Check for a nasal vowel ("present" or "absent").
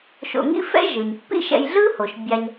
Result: absent